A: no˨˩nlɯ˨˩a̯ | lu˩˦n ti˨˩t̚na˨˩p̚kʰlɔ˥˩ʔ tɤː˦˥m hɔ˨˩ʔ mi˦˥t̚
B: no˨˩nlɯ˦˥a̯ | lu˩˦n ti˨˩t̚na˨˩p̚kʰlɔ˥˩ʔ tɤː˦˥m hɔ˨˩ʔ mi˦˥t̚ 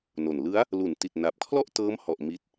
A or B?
B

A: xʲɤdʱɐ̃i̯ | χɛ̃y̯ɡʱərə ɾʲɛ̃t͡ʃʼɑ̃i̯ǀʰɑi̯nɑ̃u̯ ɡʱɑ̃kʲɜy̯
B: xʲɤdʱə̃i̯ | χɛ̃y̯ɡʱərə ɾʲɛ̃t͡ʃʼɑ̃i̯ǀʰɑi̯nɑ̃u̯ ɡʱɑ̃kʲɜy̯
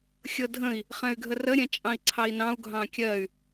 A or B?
B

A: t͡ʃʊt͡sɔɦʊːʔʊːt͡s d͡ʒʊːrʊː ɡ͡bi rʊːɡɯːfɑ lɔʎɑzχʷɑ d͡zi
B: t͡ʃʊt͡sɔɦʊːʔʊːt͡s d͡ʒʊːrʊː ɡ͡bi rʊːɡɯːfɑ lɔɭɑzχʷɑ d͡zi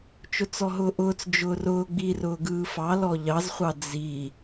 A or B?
A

